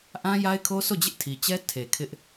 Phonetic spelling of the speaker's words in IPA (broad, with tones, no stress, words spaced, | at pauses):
ʔã˦ja˦ɪ̯kʰo˦so˦˨ d͡ʑɪ˦ʔtʰi˨t͡ɕɛ˦ tʰe˨kʰɪ˦ʔ